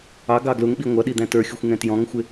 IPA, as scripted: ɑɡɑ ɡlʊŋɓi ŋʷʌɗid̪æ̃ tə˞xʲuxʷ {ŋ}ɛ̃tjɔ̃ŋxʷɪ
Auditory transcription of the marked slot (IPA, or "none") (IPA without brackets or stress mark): ŋ